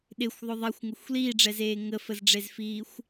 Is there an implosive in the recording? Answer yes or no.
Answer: yes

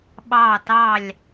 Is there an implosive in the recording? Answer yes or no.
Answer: yes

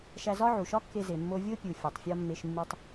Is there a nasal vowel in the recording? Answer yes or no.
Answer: no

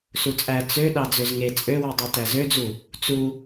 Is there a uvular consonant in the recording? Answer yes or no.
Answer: no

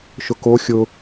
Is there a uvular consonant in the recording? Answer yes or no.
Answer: no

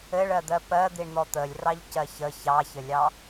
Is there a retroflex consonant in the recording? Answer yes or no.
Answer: yes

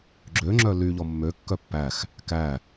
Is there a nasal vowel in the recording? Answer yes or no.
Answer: no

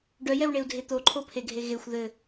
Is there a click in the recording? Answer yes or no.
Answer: yes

